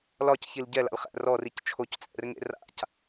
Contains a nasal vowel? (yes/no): no